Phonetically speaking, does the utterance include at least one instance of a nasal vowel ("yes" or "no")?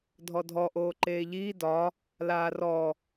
no